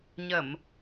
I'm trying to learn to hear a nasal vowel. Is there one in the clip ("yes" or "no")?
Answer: no